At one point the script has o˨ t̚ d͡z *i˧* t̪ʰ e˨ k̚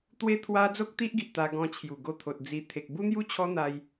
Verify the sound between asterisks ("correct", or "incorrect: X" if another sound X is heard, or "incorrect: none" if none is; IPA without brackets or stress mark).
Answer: correct